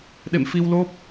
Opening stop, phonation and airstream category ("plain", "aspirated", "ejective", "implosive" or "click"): implosive